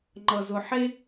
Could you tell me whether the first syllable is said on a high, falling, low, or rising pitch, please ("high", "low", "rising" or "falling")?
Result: low